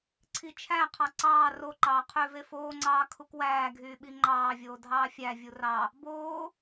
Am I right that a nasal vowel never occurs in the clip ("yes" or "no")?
yes